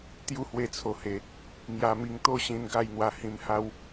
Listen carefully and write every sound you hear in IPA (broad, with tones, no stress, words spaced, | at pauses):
t̪ju˦hwe˧t͡sʰo˨˩he˨˩ | ŋja˧mi˧ŋ t̪o˦ɕĩ˧n ɡa˥˧jn̪wa˧ hĩ˧mha˦w